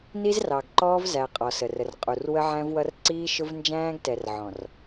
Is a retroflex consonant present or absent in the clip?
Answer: absent